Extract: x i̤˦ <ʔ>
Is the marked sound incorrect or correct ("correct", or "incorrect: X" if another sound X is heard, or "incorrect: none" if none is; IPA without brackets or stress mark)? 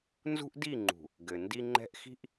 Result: correct